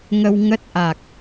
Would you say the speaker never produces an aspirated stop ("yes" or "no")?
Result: yes